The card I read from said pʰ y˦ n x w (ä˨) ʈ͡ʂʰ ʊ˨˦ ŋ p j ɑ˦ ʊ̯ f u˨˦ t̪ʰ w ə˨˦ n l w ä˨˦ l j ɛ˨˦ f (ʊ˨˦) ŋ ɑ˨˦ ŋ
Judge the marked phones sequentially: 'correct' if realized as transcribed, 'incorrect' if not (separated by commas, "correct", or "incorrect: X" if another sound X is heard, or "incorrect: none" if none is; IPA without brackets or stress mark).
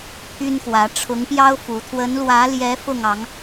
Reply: incorrect: ä˨˦, incorrect: ʊ˥˨